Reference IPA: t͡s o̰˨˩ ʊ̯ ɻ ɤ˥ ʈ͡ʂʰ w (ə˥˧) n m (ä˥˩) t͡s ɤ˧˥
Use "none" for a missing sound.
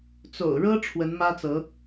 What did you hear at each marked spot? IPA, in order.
ə˧˥, ä˥

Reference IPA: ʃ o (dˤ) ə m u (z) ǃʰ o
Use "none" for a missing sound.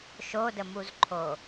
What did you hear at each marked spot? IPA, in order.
d, z

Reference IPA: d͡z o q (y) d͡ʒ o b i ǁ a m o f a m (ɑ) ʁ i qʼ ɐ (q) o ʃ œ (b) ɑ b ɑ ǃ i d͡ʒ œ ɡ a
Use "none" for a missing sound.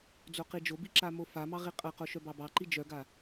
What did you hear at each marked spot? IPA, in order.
i, ɑ, q, b

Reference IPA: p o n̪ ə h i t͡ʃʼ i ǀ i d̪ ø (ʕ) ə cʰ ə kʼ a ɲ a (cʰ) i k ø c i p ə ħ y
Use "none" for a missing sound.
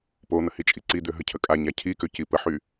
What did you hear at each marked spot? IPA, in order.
ɦ, cʰ

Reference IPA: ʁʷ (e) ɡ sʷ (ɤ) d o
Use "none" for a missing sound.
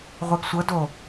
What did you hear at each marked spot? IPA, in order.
e, ɤ

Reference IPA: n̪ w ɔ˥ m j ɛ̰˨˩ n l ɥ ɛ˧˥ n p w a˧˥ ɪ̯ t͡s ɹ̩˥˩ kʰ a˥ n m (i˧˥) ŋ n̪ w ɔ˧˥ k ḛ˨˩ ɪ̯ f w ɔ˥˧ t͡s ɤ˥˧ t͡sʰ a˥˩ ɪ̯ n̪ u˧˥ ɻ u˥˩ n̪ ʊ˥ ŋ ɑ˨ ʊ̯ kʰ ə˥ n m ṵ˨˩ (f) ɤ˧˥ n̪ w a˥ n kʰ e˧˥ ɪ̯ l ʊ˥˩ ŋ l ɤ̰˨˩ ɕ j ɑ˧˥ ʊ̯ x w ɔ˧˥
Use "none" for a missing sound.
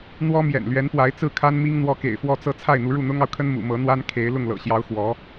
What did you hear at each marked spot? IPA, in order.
i˥, m

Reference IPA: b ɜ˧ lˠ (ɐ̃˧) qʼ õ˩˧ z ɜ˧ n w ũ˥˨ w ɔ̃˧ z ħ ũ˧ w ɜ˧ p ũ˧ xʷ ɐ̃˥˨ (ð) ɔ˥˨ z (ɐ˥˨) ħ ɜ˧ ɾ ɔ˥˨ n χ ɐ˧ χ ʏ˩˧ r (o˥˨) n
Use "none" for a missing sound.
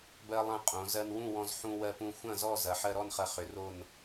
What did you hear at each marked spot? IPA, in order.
ɐ̃˧, z, ɐ˩˧, o˥˨

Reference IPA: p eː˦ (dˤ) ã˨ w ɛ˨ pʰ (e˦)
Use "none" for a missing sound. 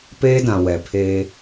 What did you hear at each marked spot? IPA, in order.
d, e˦

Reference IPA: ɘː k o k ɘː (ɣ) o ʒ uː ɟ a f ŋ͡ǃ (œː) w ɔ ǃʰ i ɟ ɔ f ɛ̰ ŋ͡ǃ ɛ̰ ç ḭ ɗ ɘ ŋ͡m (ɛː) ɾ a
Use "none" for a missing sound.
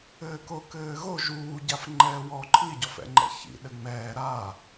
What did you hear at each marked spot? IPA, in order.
ɣ, ɛː, ɛː

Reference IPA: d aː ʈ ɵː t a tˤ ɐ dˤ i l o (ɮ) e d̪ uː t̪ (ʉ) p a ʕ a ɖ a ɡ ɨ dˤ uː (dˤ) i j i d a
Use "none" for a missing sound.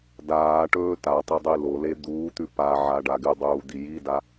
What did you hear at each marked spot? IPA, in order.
l, ʉ, d̪

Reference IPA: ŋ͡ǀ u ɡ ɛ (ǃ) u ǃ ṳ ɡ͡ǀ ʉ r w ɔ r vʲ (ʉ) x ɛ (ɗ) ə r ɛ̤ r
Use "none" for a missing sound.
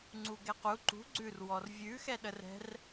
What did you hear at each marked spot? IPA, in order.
q, ʉ, ɗ

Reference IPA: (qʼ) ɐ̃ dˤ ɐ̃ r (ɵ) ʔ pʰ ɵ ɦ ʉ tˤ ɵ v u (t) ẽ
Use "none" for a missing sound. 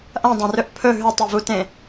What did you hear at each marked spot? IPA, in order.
ʔ, ɵ, t

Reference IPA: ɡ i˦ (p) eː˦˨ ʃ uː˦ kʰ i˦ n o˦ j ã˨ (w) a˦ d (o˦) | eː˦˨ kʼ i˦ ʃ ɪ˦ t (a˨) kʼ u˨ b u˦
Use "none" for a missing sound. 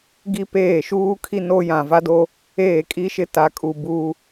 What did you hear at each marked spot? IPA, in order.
p, v, o˦, a˨

